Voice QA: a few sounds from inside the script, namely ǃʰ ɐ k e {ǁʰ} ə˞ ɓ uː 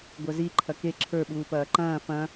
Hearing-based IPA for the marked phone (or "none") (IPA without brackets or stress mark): ǁʰ